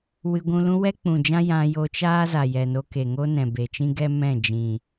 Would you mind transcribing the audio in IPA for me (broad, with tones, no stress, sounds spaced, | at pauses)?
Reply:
w ɨ˧ ɡʷ ũ˧ l ũ˦ w ɛ˦ k͡p ũ˨ d͡ʒ ã˦ j ã˧ j o˧ t͡ʃ aː˦ z a˨ j ɛ˨ n o˧ k e˨ ŋ o˦ n ɛ̃˨ b e˨ t͡ʃ ĩ˦ ɡ ɛ˦ m ɛ̃˦˨ d͡ʒ ĩ˨